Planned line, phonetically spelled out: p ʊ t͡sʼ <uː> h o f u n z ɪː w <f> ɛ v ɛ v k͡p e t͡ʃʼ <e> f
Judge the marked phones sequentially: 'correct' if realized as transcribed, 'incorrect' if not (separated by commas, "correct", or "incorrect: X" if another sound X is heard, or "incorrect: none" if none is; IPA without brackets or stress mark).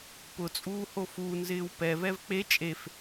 correct, incorrect: p, correct